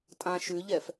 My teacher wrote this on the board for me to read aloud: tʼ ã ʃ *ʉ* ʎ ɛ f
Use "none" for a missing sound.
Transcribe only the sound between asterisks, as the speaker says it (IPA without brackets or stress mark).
ʉ